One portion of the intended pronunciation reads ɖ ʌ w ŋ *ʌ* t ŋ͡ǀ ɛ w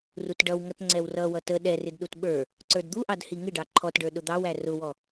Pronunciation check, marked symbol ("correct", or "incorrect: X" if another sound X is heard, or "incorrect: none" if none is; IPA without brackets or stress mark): correct